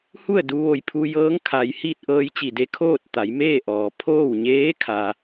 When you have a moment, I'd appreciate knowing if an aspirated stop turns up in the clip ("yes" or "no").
yes